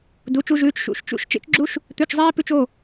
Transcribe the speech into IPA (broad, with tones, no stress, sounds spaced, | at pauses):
d u˧˥˧ t͡ʃ u˥ ʒ ʉː˧˥˧ t͡ʃ ʃ ṵ˧˥˧ ʃ t͡ʃ ṵ˥ ʃ t͡ʃ ḛ˥ t͡ʃ ɡ͡ǁ u˥ ʃ | t̪ ʉ˧˥˧ t͡ʃ zˤ eː˥ p ʉ˥ t͡ʃ o˧˥˧